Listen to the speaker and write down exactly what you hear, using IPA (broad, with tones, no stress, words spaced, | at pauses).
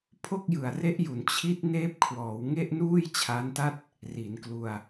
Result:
pʰo˥˩k̚jɯ˨˩a̯ re˦˥ʔju˩˦n t͡ɕʰi˦˥t̚ neː˦˥p̚kʰwɔː˩˦wŋe˥˩ʔ nuː˥˩jt͡ɕʰa˦˥nta˥˩t̚ | ri˩˦nklu˧a̯